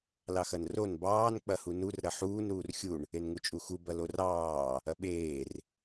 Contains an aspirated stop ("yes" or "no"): no